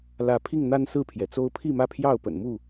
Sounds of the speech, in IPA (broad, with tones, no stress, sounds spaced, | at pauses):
l ä˨˦ pʰ i˥˨ ŋ n̪ a˦ n s ɹ̩˥˨ pʰ j ɛ˩ t͡s o˦ ʊ̯ pʰ i˥˨ m ä˥˨ pʰ j ɑ˥˨ ʊ̯ p ə̰˨˩ n m u˥˨